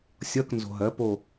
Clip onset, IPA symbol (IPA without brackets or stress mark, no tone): sʲ